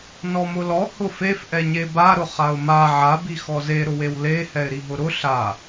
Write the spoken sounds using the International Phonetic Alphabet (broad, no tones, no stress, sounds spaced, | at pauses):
n ɔ m ʊ l ɔ h ʊ f e f ʔ ɛ ɲ e b a ɾ ʊ χ a ʊ̯ m a ʕ a b i x ɔ z e ɾ ʊ w e w l e h ɛ ɪ̯ ɾ i ɦ ʊ ɾ ʊ ɬ a